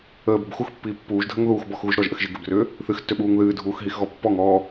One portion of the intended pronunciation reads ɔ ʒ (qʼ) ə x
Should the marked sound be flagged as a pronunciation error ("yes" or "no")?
yes